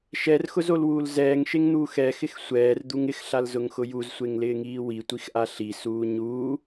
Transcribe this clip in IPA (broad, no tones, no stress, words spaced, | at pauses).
ʃɛrxʊzolwuːl zɛːŋʃeŋn̪uːx ɛxɪx sʷɛːrd̪uŋ ɪxɬalzʊŋxʊ juzsʷeŋlɪːŋiː witʷixʔa ɬisuː ɲuː